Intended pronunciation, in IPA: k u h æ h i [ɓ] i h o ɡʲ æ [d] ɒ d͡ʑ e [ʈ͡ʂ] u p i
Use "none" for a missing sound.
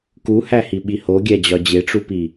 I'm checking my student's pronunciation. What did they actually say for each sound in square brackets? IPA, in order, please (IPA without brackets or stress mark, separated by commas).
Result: ɓ, d͡ʑ, ʈ͡ʂ